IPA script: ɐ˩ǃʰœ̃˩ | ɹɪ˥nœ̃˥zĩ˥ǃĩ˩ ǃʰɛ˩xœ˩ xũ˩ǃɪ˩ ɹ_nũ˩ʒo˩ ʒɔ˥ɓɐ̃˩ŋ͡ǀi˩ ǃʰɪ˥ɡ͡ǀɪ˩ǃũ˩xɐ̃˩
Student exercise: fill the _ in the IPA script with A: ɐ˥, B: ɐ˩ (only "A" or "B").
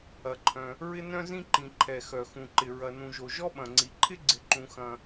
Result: B